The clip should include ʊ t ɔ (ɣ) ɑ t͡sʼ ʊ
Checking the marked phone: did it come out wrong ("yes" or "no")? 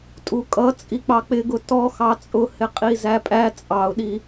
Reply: yes